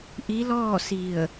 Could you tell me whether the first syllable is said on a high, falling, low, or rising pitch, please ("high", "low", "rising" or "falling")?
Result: rising